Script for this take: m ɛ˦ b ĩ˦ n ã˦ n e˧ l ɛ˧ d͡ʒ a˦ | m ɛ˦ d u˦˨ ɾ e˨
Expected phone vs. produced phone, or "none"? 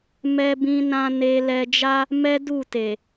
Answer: ɾ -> t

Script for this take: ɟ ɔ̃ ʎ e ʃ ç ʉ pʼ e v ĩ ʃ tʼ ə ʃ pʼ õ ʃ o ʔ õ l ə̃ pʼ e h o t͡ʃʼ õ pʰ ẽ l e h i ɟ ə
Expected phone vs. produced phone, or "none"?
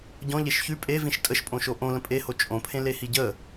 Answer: none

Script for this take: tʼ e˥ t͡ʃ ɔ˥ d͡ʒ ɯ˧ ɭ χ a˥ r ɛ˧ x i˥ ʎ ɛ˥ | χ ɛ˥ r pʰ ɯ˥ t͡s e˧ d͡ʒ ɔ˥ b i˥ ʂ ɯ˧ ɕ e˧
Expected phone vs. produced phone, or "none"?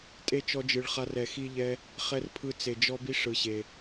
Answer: none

